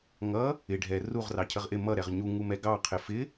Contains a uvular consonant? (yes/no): yes